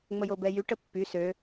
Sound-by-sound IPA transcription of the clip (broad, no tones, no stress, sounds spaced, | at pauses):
ŋ͡m ə j o b ɛ j y ʈ ə pː y s ø